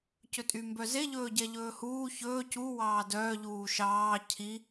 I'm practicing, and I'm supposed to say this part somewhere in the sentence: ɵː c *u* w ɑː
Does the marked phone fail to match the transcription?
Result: no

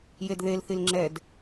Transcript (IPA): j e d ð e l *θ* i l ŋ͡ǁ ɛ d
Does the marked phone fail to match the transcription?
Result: no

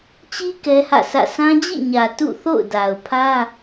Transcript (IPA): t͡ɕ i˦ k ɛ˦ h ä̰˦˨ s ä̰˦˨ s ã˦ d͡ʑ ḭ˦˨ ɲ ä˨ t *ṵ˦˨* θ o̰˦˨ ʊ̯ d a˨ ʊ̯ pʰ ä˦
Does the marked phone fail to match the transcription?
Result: no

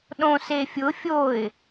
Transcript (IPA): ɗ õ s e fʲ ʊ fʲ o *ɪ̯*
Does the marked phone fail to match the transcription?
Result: no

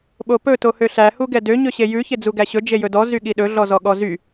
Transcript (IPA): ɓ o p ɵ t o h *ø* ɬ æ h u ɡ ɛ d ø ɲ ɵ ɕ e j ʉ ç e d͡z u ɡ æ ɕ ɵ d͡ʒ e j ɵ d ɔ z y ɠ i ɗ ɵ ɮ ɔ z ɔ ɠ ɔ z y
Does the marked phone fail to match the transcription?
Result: no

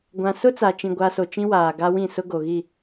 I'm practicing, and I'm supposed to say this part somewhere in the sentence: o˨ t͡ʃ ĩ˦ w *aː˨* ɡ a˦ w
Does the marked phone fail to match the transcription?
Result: no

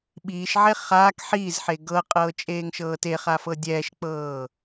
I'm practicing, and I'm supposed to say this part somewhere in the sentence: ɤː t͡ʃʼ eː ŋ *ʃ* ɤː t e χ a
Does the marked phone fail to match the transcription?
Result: no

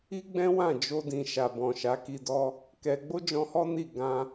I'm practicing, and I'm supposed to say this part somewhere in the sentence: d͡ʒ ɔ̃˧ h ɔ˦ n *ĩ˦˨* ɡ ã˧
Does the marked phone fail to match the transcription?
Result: yes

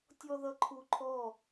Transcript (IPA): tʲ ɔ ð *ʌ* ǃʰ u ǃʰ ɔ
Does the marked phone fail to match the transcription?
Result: no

